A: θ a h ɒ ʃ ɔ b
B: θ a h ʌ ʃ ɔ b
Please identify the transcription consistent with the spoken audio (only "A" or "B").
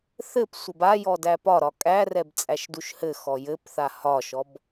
A